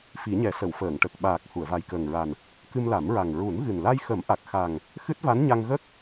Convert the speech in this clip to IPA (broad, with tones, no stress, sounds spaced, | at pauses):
f i˨˩˦ ɲ ɛ˨˩˦ s ə˨˩˨ w f əː˨˩˨ ŋ ʈ ə˨˩ k̚ ɓ aː˨˩ k̚ h u˨˩˨ ə̯ v a˨˩ j k əː˨˩ ŋ ɹ a˨˩ n | k ɨ˧ m l a˨˩˦ m ɹ a˨˩ ŋ ɹ u˨˩˦ n ɣ ɨ˨˩ n l a˧ j x ə˨˩˦ m ʔ a˨˩ k̚ x a˨˩ ŋ | x ɨ˦˥ t̚ v a˧˥ n ɲ a˧ ŋ ɣ ə˦˥ k̚